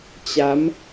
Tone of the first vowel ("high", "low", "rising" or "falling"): rising